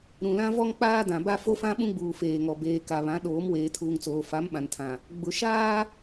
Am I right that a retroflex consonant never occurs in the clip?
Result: yes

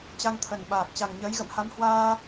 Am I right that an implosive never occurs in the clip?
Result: no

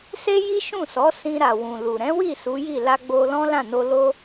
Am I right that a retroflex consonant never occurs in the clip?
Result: yes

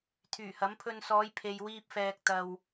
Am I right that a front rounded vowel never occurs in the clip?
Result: no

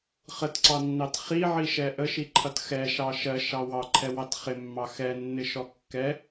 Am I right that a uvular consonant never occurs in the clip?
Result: no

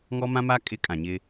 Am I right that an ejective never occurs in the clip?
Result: no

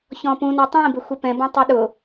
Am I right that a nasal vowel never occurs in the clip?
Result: no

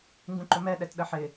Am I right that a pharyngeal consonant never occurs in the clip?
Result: no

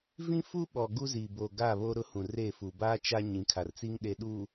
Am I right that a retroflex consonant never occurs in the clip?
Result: yes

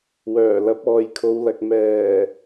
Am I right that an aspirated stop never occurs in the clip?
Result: no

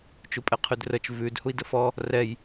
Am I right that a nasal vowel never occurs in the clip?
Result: yes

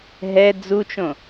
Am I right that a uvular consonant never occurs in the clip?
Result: yes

